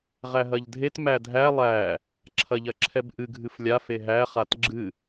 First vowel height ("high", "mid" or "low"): low